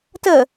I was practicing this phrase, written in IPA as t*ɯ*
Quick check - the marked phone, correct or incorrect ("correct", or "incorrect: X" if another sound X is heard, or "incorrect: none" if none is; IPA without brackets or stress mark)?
incorrect: ə